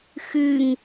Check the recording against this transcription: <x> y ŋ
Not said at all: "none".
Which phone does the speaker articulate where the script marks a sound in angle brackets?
x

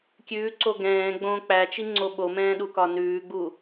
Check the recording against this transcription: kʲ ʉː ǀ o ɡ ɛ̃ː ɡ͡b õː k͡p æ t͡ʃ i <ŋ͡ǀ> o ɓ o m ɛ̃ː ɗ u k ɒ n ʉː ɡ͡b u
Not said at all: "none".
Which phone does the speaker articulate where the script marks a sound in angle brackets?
ŋ͡ǀ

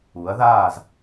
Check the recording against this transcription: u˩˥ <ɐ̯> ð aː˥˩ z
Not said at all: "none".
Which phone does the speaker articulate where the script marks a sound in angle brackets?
ɐ̯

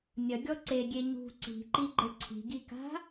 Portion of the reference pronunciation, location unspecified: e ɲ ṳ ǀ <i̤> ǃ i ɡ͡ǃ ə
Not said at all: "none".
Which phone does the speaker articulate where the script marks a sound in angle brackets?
i̤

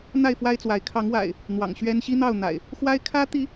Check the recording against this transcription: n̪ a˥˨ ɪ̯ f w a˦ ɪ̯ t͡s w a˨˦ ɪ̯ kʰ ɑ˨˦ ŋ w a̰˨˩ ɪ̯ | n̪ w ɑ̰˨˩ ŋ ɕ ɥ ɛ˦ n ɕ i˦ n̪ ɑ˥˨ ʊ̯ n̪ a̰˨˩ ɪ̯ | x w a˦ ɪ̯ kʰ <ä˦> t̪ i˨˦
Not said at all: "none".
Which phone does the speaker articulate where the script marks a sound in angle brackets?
ä˦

